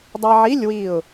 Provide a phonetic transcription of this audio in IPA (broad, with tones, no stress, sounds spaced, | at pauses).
dˤ a˧ ʕ i˧˥˧ lʲ w i˧˩ ʊ̯